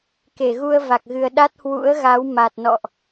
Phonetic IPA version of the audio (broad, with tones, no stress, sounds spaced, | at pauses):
k e˧˩ ɣ u˧ ə̯ v a˨˩ k̚ ɣ ɨ˨˩ ə̯ ɗ a˦˥ t̚ h w ṵ˧˥ ə̯ ɣ a˨˦ w m a˨˩ t̚ n ɔ̰˧˨ ʔ